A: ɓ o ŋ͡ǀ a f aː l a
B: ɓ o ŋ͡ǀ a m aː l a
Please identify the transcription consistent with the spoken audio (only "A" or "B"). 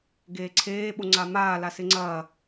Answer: B